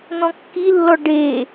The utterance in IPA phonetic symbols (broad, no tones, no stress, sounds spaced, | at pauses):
n̪ ɔ̃ kː i lː ɔ ɖ e